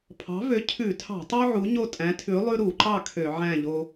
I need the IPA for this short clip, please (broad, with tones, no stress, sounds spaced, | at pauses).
pʰ ɑ̤˨˥ v ø˨˥ cʰ ʉ˧˩˧ tʰ ɑ̤˧˩˧ tˤ ʉ˦ ʕ u˨˥ ɲ o˥˨ tʼ æ̃˨˥ tʰ ʉ˨˥ lˠ ʉ˦ ɾ u˧˩˧ ǃ ɑ˥˨ kʰ ø˧˩˧ ʕ æ̃˥˨ ʎ o˦